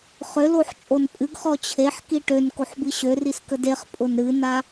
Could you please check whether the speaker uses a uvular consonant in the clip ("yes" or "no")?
yes